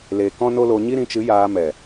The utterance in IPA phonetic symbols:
l e˨ k ɔ̃˦ n o˦ l o˧ ɲ i˦ ɾ ĩ˨˦ t͡ʃ ɨ˨˦ j aː˧ m ɛ˨

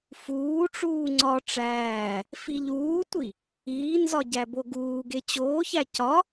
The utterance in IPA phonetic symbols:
f uː ʈ͡ʂ uː ŋ͡ǀ ɒ ʈ͡ʂ æː | f i ʎ uː tʷ i | iː n z ɒ ɟ æ b o ɡ uː ɡ e t͡ɕ oː ç æ c ɒ

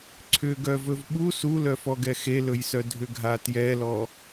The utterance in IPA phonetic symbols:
ǀʰ ʏ ɡ œ v ɵ v ɓ u s u l œ f ɔ ɡ ɛ x e l ɵ j s œ dʱ ʏ ɡʱ a t j ɛ l ɔ

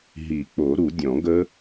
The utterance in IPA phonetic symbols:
ɦ i˨˩˦ k͡p o˨˩˦ ɾ u˨˩˦ dʲ ɔ̃˨˩˦ ɡ ə˦˥

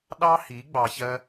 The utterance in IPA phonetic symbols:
ɗ ɑ˦ h i˨˦ ɡ͡b ɑ˧ ç ɜ˦

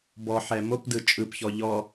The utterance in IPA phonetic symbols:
b ɔ ħ ɛ m o p d ɯ t͡ʃʼ ɯ p ç ɔ ʎ ɔ

